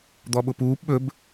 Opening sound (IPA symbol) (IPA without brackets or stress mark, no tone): d̪